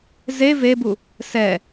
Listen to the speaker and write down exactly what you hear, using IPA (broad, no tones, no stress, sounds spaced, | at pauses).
z e v e b u | s ɛ